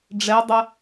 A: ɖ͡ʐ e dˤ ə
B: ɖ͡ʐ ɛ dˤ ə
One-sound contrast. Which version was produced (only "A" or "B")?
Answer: B